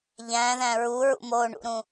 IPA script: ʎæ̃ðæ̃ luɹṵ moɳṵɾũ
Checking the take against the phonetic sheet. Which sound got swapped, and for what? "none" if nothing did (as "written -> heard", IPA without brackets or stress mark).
l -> ɹ